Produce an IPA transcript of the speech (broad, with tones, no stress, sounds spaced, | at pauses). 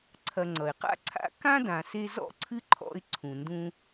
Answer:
ǀʰ ɐ˨ ŋ͡ǀ ʌ˩ ɪ̯ q a̰˦ ǀʰ a̰˦ k ã˥ d ã˨ s e˦ z ɔ̰˥ ǀʰ ɨ˥ ǃʰ ɔ̰˦ ɪ̯ ǀʰ ũ˨ n d ũ˥